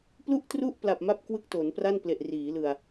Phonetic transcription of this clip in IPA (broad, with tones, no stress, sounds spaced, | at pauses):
p l u˥˩ ʔ t r u˥˩ ʔ p l a˨˩ p̚ m a˥˩ p̚ k w ɯ˥˩ k̚ t o˩˦ n p r a˥˩ n p l e˨˩ ʔ r iː˩˦ l ɯ˧ a̯